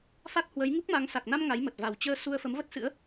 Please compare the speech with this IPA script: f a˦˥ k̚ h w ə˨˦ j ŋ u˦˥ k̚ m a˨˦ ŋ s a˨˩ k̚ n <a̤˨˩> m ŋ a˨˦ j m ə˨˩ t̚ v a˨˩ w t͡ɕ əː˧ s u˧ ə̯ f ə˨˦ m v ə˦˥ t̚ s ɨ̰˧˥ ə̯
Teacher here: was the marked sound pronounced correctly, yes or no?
no